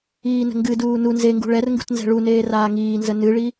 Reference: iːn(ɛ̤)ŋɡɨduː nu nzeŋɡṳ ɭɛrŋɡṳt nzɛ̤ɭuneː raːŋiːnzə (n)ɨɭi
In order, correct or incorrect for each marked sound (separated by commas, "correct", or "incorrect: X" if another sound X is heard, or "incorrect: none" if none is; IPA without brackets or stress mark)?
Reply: incorrect: ə̤, correct